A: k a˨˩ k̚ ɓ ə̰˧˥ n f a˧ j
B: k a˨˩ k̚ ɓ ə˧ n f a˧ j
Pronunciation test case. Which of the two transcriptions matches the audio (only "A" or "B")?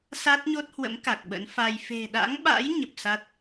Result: A